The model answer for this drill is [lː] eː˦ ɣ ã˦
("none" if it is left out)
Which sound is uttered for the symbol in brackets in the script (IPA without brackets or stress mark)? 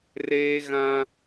r